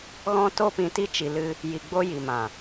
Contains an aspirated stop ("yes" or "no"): no